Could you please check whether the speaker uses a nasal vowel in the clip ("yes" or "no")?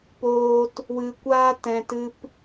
yes